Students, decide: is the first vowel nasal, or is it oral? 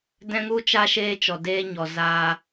nasal